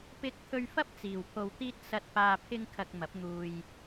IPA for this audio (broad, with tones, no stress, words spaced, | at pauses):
pɪ˧k̚t̪ʰɵ˧ɥfɐ˥p̚ t͡siː˨wpʰo˧wt̪iː˥t̚ sɐ˧t̚ paː˧pʰɪ˥ŋ kʰɐ˧k̚mɐ˨˥p̚n̪uː˧j